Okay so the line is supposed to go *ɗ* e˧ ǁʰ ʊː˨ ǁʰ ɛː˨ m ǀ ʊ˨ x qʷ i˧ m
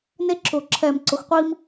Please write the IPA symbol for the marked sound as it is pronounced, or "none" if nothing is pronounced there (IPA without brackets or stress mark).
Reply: n